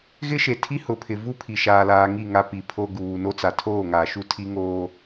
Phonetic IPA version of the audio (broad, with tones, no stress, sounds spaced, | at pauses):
ɣ ɪ˦ ʃ e˨ tʰ i˦ h ʊ˨ pʰ ɪ˨ v u˦ pʰ i˨ ʃ aː˨ l aː˨ ŋ i˦˨ ŋ a˦ p i˨ pʰ o˦ ɡ uː˨ n o˦ t͡s a˨ tʰ oː˦˨ ŋ aː˨ ʃ u˦ tʰ i˦ ŋ oː˦